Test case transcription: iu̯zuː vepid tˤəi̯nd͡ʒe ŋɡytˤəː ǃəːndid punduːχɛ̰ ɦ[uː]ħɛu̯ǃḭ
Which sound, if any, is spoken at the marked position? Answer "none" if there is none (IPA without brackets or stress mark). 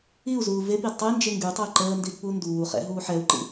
uː